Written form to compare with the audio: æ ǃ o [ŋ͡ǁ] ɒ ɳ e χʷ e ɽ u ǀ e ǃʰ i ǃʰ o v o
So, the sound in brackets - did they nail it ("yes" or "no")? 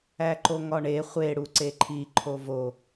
no